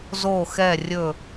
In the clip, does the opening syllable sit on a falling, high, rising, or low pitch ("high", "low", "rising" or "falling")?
falling